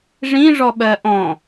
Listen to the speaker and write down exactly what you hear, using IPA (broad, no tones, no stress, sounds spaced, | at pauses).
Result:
ʐ ĩ ʐ ɔ ɓ ɜ ʔ ɔ̃